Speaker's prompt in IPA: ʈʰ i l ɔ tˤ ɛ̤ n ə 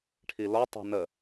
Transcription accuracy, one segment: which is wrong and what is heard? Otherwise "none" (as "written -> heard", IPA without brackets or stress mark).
none